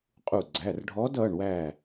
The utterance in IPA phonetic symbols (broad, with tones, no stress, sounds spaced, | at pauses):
qʼ u˧˩ ɡ͡ǀ æ˩˧˩ r ɖʱ ɔ˧˥ d ʌː˩˧˩ ɳ w æː˧˩